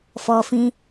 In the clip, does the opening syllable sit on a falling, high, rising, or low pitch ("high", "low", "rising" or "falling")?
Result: low